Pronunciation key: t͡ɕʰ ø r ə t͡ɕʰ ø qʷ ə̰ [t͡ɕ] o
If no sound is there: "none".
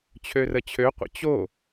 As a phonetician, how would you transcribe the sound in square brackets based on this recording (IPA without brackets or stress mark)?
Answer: t͡ɕ